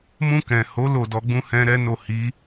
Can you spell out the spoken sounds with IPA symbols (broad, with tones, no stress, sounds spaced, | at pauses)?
m ũ˧ k ɛ̃˨ h o˨˦ l o˦˨ d ɔ˧ ɡ͡b ũ˦ h ɛ̃˦ ɾ ɛ˦ n o˦˨ h i˨˦